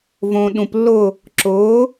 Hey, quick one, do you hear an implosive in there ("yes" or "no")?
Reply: yes